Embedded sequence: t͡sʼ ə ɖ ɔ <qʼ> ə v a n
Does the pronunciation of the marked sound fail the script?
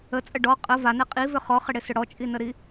no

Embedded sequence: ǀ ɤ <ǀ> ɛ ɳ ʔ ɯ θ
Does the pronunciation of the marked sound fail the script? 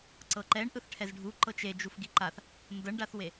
yes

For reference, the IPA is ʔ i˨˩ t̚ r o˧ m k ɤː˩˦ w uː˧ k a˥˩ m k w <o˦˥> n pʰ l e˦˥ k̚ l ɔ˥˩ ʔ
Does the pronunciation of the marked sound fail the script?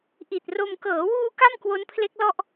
no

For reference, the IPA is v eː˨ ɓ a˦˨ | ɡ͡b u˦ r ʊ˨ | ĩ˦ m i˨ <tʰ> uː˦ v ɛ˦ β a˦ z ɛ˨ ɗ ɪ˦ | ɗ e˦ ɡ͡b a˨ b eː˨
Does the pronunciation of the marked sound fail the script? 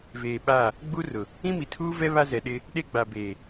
no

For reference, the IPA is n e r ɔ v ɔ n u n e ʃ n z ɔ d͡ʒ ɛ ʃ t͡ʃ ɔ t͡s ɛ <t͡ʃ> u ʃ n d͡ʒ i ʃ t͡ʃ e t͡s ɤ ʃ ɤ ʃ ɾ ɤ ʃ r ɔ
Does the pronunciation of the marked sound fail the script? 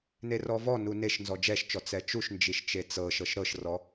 no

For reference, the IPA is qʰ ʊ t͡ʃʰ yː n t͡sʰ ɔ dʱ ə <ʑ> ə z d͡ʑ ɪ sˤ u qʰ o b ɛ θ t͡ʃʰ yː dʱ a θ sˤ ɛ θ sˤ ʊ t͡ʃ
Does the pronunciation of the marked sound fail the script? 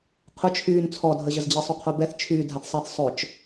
no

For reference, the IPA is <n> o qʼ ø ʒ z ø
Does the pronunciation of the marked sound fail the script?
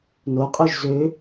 no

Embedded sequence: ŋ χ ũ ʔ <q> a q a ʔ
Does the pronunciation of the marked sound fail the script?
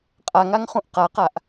no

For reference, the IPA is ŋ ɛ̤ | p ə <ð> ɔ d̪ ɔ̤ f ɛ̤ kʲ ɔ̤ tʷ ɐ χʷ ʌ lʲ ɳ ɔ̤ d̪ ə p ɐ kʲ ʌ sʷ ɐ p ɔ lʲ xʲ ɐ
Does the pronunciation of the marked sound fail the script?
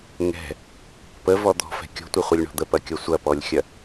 yes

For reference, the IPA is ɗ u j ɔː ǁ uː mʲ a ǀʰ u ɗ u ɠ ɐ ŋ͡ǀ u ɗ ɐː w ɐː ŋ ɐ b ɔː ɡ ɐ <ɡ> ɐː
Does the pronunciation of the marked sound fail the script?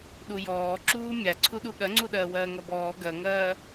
yes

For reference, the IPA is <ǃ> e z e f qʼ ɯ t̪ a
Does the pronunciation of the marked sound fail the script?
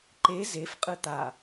no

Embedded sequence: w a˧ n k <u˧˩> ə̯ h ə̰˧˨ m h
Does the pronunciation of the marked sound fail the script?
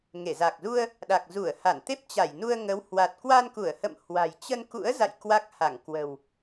no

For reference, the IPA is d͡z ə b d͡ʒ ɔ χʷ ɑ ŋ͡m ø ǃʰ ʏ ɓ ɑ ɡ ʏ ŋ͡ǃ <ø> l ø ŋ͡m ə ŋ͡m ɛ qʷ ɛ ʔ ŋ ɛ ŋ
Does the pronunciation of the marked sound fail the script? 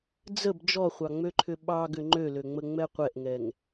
no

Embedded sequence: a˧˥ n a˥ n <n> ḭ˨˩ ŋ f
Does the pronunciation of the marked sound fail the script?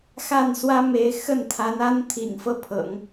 yes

